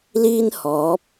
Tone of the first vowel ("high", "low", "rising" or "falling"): high